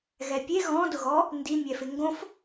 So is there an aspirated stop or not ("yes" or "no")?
no